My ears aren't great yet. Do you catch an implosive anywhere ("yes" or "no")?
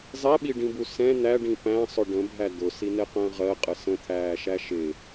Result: yes